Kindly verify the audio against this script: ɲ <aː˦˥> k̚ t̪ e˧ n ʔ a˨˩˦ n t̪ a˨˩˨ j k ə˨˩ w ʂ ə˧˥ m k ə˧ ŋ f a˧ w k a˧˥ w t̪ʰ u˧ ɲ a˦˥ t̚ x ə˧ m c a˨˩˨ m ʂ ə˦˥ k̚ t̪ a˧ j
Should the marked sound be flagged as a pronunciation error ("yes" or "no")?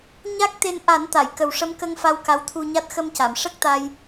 yes